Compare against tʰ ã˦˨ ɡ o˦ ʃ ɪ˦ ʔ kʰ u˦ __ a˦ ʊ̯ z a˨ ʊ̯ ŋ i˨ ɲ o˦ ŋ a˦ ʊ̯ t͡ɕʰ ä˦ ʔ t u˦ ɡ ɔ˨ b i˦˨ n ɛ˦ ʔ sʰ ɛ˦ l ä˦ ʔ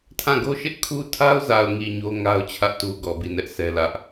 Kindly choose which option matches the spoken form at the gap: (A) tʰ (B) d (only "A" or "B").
A